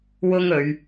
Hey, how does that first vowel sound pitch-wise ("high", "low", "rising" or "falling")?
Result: high